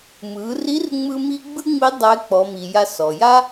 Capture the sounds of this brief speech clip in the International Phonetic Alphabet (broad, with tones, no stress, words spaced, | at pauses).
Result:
mɯ˩˧ri˧˥rŋ͡mɯ˧ mi˥ ɡ͡bɯ˥ŋ͡mi˧˥ dˤɛ˧˥k͡pɔ˩˧mi˩ ja˧sɔ˩ ja˥